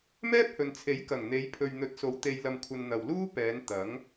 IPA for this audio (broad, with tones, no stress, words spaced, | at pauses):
mɛː˥p̚hɵ˨nt͡sʰe˨˥j kɐ˨˩ŋn̪e˨˧j pʰɵ˨ɥn̪ɵ˨˥t̚so˨˥w t̪e˧jlɐ˧mkʷʰɐ˧n n̪ɐ˨wluː˥pɛː˨˧n t̪ɐ˨˥ŋ